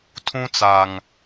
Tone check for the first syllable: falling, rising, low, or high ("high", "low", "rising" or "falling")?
high